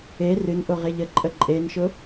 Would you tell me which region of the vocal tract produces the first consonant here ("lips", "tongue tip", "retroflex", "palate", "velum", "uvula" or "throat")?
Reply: tongue tip